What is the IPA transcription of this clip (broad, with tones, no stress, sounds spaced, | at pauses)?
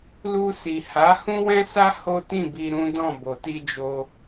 l u˧ s i˨ h a˨˦ h ũ˦ w ɛ̃˦ s a˦ h o˦ t ĩ˦˨ b i˧ ɾ ũ˦ d ɔ̃˦˨ b o˨ t i˧ d͡ʒ o˧